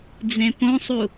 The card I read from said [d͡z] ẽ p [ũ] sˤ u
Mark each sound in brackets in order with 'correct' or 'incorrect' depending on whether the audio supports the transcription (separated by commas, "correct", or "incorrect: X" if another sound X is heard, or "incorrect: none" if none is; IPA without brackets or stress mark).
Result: correct, incorrect: õ